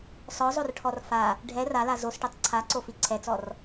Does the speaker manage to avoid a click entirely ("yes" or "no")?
no